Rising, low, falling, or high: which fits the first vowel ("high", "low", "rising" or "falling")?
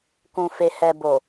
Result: low